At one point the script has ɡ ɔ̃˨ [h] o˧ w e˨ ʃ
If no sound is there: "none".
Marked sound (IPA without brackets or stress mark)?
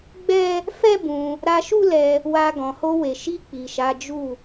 h